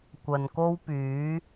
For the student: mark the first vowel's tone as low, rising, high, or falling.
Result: low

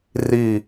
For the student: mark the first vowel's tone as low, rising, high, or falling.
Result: falling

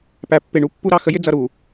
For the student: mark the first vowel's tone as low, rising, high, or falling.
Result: low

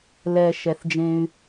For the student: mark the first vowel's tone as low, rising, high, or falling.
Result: low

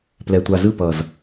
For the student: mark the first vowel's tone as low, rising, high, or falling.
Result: low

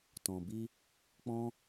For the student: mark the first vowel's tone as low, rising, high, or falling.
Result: low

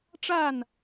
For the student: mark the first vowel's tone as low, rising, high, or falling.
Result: falling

